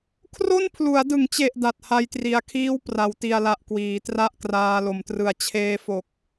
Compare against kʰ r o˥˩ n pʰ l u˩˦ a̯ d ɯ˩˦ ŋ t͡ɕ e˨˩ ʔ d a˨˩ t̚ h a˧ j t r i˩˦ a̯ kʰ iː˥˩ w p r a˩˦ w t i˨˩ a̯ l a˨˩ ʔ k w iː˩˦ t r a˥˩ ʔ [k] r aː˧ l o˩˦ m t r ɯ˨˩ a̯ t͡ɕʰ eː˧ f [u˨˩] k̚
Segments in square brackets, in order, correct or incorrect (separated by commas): correct, incorrect